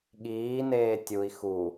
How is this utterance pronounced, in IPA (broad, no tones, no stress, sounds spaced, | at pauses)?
ɠ iː n eː tʲ u i̯ x u